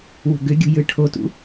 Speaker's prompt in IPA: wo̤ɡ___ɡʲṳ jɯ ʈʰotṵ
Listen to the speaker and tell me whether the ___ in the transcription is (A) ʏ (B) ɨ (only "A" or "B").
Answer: A